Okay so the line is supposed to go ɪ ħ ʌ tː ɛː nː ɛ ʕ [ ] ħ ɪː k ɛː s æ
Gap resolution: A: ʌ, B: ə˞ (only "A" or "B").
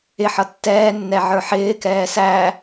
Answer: B